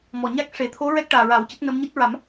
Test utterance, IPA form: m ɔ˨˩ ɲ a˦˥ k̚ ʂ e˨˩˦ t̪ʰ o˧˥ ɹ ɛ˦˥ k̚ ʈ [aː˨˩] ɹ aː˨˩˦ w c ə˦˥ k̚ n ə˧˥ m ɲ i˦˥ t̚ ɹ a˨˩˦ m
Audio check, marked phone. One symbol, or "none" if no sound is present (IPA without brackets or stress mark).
aː˨˩